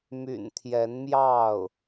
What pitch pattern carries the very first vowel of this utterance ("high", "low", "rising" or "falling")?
low